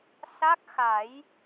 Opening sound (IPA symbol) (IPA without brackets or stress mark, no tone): s